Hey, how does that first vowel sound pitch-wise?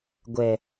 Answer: low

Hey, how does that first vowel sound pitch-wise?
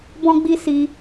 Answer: high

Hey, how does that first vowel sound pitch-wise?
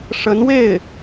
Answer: rising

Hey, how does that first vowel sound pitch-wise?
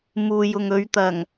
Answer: low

